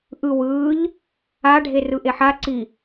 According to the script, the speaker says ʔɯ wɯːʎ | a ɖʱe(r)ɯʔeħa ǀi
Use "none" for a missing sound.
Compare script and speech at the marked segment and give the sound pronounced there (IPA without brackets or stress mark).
r